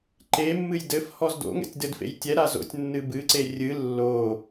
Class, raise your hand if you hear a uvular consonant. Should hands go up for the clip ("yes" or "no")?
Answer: no